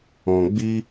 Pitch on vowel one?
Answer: low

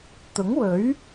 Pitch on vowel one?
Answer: rising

